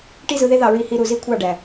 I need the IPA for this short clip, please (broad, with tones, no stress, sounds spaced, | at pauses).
ʈ i˥ z ɯ˧ ð e˥ ð ɑ˥˩ ɹ i˥˩ h i˥˧ ɾ u˥˧ z i˥ kʷʰ ɑ˥˧ ɖ æ˩